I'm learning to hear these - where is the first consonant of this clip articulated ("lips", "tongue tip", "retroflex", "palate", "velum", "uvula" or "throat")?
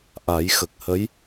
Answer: throat